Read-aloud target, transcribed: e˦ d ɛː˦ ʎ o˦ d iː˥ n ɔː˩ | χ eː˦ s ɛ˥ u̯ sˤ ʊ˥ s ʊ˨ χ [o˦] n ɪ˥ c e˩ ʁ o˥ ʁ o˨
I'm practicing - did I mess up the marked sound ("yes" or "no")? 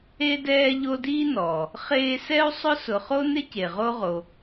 yes